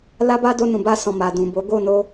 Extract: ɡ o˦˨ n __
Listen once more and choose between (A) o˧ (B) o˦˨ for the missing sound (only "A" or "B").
A